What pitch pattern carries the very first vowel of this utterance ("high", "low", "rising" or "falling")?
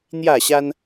falling